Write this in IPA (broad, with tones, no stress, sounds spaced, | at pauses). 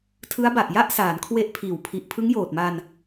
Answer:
tʰ ɯ˦˥ a̯ b a˨˩ ʔ j a˥˩ ʔ s aː˩˦ n kʰ w e˦˥ ʔ pʰ iː˩˦ w pʰ i˨˩ ʔ pʰ ɯ˦˥ ŋ j oː˨˩ t̚ m a˧ n